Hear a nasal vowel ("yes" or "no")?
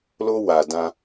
yes